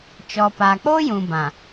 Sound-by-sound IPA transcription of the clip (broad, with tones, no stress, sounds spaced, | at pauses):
t͡ʃ ɔ˨ p a˨ k͡p o˦ j ũ˨ b ã˨